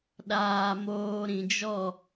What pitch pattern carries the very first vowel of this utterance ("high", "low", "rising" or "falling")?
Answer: low